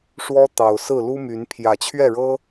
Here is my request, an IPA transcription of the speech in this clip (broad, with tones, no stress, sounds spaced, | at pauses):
ʂ w ɔ˦ t̪ ɑ˨˩ ʊ̯ s ɹ̩˥˨ l u˦ m y˨˦ n pʰ j ä˨˩ t͡ɕʰ ɥ ɛ˥˨ ɻ ɤ˦